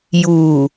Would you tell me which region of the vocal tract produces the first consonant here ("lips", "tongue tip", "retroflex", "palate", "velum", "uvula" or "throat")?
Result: palate